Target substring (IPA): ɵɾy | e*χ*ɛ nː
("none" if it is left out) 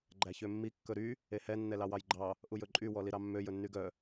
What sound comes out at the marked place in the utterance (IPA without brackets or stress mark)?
h